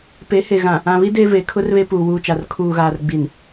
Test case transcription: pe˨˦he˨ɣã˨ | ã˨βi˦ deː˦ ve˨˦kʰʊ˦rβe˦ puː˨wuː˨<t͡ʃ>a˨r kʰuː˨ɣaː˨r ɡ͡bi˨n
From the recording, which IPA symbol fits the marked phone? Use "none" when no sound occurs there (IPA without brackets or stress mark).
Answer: t͡ʃ